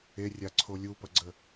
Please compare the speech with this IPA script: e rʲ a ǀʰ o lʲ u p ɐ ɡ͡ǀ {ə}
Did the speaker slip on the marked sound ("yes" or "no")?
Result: no